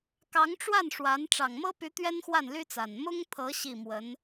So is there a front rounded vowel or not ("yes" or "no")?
yes